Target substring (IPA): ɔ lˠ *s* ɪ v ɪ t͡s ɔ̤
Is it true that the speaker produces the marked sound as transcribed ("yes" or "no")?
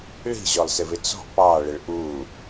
yes